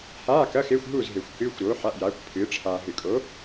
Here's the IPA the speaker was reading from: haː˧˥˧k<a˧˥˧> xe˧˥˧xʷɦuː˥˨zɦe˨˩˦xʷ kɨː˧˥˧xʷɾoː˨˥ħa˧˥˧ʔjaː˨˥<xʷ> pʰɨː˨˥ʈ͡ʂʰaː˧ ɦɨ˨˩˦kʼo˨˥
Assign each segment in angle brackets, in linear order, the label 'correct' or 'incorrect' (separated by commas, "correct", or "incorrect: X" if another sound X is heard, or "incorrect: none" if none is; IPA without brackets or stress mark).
incorrect: ɐ˧˥˧, incorrect: kʷ